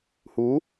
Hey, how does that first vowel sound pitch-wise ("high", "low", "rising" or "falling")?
rising